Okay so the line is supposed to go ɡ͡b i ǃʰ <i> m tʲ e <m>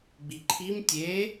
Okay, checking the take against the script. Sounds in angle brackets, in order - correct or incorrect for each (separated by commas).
correct, incorrect